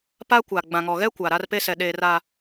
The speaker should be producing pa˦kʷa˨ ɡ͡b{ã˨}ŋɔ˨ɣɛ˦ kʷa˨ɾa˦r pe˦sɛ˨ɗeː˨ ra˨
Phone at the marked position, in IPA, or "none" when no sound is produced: ã˨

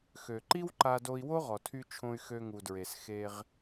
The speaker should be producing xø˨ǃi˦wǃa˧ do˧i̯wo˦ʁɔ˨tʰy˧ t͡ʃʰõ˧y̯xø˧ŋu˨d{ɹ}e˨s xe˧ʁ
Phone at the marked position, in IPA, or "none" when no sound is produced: ɹ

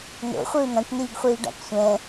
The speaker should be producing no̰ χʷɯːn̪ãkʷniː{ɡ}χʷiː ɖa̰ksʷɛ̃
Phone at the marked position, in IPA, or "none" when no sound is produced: ɡ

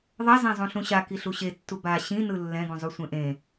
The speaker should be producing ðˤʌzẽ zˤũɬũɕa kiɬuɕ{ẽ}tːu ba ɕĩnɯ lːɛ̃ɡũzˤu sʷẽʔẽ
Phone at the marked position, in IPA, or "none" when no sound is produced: e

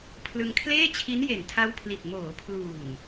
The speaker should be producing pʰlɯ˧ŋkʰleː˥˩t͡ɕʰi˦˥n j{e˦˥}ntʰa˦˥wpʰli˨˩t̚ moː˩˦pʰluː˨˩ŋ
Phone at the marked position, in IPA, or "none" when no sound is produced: e˨˩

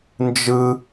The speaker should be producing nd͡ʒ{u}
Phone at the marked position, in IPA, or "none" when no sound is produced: ɯ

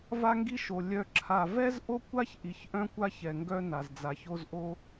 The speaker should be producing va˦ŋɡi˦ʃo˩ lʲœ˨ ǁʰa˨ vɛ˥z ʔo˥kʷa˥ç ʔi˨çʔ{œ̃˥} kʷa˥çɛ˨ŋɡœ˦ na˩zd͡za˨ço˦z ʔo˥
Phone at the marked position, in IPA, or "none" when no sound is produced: œ̃˥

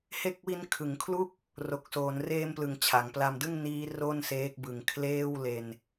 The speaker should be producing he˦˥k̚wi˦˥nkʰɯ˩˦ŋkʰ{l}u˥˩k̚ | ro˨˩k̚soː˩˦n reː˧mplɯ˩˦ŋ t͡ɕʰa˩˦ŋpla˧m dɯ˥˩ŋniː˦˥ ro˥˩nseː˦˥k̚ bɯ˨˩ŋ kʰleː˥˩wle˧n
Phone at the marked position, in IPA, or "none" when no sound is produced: l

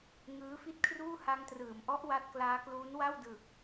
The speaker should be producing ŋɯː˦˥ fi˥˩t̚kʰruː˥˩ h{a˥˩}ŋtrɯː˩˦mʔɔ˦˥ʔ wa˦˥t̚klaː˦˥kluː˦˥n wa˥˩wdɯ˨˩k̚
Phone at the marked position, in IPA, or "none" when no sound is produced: a˧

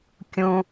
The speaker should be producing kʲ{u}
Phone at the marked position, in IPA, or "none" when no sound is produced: ũ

